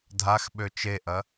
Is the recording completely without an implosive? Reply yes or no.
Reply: no